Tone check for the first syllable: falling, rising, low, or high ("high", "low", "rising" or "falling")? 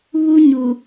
high